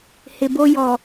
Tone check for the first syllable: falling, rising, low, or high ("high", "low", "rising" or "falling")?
low